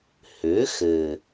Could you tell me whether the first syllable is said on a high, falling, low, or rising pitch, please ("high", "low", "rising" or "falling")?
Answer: rising